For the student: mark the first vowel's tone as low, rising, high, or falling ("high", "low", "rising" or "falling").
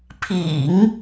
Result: low